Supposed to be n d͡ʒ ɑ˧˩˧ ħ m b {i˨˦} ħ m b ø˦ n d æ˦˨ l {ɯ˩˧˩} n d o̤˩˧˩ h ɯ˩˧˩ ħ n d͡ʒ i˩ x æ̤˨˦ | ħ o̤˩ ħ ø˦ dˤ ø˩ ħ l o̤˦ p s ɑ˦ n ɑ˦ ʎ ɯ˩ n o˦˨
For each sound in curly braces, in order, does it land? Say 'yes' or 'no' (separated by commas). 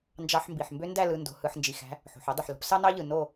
no, yes